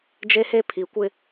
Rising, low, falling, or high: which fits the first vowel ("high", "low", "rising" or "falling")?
high